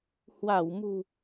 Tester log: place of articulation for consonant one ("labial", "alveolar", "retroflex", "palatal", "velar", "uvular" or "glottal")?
glottal